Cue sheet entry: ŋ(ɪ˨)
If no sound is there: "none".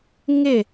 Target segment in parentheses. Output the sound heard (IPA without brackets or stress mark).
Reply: ɪ˦˨